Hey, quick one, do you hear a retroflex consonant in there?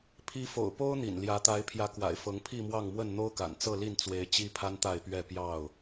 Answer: no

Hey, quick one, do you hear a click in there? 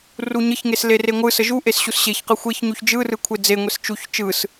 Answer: no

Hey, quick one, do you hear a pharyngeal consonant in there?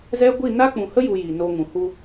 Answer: no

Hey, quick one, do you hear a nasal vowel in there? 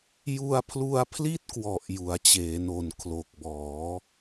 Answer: no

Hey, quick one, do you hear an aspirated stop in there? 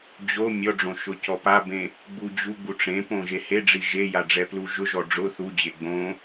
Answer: no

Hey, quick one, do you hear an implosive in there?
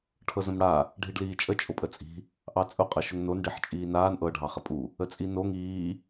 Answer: no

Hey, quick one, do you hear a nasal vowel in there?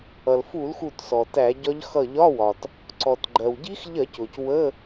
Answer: no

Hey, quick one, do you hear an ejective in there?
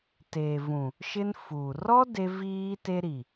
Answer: no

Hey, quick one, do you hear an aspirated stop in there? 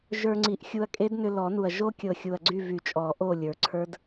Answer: yes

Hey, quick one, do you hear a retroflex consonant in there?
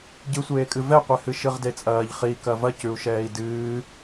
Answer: no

